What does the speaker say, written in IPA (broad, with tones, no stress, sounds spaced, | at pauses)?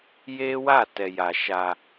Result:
j e˦ w a˦˨ t ɛ˧ j a˧ ʃ a˧